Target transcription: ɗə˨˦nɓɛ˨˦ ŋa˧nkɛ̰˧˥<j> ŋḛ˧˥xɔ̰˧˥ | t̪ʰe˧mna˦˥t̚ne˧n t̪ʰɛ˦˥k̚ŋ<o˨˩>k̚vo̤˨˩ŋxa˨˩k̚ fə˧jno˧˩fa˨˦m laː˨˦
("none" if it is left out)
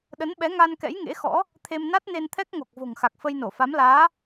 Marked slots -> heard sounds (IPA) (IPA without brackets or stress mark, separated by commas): j, o˨˩